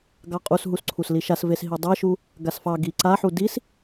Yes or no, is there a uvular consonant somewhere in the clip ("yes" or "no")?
yes